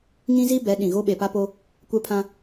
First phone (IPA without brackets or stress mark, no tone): ŋ